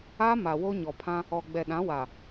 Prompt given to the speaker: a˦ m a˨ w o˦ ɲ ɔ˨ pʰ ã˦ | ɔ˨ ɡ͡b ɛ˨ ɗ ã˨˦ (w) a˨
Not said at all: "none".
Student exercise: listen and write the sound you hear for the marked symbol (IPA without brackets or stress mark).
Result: w